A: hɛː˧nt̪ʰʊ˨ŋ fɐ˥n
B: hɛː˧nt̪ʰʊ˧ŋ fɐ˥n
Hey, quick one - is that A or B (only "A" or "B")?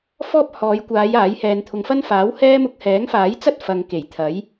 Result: B